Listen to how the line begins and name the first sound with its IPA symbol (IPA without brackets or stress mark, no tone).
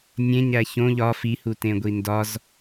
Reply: nʲ